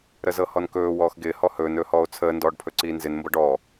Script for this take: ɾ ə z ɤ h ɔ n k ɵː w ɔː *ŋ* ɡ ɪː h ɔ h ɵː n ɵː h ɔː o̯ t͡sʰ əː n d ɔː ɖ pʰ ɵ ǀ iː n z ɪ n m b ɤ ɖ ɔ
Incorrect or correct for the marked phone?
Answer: incorrect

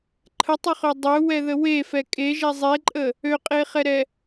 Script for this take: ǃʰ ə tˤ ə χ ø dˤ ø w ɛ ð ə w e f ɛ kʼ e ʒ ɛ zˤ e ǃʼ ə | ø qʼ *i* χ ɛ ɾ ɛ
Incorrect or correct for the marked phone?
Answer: incorrect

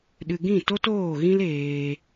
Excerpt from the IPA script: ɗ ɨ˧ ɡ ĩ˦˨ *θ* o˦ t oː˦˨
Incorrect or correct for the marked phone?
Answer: incorrect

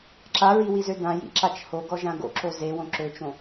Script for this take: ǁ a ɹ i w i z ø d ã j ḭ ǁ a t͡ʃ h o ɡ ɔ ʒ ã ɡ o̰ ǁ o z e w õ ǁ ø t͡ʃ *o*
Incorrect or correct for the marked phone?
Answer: incorrect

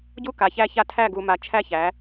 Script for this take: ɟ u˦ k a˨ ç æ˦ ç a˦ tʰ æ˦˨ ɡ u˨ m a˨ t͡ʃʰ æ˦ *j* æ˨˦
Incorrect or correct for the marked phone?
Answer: incorrect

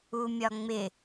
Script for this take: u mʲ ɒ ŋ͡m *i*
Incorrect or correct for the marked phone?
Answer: incorrect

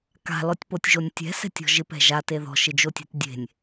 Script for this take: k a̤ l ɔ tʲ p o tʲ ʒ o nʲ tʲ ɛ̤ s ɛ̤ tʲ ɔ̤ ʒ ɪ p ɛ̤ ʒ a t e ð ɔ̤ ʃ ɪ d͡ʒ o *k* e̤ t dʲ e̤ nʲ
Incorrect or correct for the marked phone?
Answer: incorrect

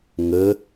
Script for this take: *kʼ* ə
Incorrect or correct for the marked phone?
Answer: incorrect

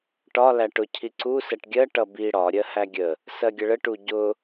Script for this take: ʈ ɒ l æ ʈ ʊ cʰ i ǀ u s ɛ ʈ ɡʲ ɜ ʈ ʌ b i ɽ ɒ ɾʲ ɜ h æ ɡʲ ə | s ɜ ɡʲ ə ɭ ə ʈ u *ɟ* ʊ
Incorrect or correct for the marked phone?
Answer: correct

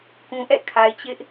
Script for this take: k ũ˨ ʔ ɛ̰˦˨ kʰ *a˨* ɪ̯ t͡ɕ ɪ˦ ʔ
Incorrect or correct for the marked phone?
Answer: correct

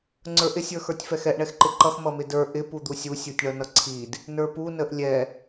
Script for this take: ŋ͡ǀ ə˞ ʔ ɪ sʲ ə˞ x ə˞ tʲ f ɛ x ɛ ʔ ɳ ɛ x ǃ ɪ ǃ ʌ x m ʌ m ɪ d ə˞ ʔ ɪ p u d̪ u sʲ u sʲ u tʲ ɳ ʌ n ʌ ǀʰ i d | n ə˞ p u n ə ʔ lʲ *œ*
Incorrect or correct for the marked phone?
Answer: incorrect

